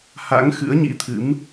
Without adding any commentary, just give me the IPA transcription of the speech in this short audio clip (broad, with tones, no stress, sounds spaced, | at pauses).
h a̰˧˥ ŋ x ɨ̰˧˥ ə̯ ɲ ḭ˧˥ t̪ʰ ɨ̰˧˥ m